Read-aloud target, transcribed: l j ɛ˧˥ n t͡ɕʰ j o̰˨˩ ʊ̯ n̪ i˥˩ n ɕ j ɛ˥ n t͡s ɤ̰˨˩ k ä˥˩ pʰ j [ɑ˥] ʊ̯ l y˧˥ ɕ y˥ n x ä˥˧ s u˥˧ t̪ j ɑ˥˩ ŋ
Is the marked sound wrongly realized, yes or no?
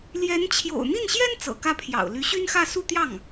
yes